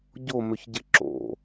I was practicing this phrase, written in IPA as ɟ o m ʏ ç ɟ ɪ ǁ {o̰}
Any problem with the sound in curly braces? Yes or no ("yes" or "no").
no